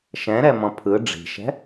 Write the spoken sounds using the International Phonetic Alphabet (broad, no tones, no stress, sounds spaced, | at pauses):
ʃ ɛ̃ ɾ ɛ m ɔ̃ pʰ ɯ ɖ͡ʐ i̤ ʃ ɛ̤